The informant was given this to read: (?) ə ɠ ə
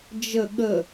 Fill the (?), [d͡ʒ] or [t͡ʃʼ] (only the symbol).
d͡ʒ